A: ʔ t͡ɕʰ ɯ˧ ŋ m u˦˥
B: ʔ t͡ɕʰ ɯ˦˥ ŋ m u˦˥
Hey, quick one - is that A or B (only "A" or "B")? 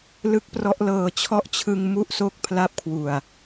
A